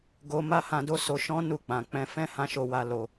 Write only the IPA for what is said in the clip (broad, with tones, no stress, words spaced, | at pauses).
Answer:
ɡo˧ma˦hã˧do˦ so˧ʃɔ̃˦ nu˦˨k͡pã˨˦ k͡pɛ̃˧ fɛ̃˦hã˧ ʃo˧wa˧ lo˧